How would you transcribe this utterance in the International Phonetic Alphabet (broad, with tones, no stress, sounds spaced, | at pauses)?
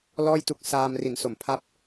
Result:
l ɔː˥˩ j t u˦˥ k̚ s aː˧ m r i˩˦ n s o˨˩ m pʰ a˦˥ p̚